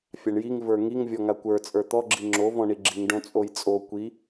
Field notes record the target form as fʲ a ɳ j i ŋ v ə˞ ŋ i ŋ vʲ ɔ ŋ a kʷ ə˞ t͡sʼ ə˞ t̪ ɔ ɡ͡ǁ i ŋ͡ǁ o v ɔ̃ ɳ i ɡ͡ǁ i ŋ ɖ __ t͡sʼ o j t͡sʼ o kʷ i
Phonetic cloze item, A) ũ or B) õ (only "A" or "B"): B